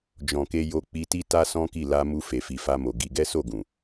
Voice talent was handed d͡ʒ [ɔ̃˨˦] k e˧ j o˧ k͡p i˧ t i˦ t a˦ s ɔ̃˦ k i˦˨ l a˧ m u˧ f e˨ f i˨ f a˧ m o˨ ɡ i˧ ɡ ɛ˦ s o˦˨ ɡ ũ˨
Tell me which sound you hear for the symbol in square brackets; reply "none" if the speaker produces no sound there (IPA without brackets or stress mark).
ɔ̃˨